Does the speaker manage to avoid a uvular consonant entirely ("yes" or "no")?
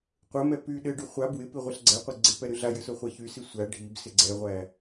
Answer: no